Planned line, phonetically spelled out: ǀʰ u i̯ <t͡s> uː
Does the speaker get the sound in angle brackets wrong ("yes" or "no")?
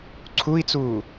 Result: no